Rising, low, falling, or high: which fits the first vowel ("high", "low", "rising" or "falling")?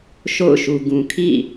falling